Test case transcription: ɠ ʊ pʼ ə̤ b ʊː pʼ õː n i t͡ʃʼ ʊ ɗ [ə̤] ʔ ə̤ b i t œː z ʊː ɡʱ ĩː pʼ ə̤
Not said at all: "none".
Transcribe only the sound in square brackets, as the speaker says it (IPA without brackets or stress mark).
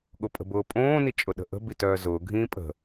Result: ə̤